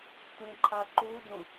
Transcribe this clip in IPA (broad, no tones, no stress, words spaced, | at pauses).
tʷẽǃʰa ǃudõ